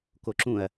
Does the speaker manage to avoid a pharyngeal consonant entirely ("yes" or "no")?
yes